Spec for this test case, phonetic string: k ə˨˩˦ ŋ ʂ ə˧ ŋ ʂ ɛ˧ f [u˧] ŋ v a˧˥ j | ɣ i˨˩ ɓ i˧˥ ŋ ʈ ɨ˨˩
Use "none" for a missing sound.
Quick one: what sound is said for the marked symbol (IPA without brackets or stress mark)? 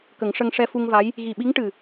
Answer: u˧